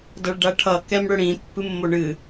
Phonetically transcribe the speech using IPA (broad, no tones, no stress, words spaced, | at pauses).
dʌɭɖaʈʰʌ kɛmɽɵɽĩ pːɨmːoɳɨ